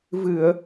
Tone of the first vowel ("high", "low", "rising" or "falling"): low